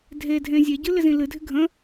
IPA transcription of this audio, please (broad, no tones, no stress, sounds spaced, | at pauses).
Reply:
dʱ e dʱ ẽ zʲ e ɟ ɨ l ɪ z ĩ l ɨ dʱ ɪ ɡʱ ə̃